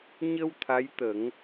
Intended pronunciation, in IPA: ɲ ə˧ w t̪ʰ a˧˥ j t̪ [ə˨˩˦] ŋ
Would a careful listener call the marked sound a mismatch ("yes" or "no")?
no